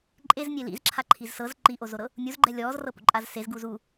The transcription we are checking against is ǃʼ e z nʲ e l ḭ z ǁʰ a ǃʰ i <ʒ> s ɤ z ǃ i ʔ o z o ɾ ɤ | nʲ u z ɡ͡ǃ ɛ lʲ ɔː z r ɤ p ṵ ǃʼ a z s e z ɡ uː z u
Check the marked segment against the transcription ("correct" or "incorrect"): incorrect